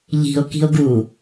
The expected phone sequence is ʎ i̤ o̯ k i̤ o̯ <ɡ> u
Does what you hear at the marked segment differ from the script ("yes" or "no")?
no